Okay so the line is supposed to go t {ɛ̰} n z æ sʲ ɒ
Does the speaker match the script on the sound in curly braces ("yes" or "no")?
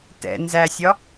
yes